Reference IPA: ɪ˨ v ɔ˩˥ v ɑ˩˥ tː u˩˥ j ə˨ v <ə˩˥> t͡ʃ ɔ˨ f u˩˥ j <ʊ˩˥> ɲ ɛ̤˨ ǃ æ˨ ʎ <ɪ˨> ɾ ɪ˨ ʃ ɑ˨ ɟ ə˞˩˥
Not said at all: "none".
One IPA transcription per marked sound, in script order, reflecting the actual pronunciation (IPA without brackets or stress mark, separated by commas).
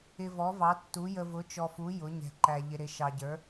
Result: ʊ˩˥, ʊ˩˥, ɪ˨